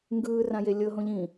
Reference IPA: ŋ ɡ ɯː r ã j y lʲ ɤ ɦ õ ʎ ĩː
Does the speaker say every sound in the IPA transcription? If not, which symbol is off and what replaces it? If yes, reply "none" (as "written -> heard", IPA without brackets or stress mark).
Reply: y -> e